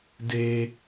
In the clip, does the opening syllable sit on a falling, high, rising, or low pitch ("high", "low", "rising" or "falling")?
high